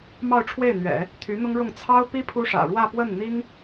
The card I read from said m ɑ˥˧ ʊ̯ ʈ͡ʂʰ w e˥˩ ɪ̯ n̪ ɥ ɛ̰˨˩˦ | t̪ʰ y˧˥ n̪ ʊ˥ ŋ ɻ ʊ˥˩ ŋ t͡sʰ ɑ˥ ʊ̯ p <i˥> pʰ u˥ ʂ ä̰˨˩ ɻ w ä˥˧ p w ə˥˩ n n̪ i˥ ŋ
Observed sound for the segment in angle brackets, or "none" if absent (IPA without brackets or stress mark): i˥